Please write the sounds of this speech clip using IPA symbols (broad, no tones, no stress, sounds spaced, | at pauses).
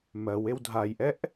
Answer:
m ɜ w e w dʱ a j ʔ ɛ ʔ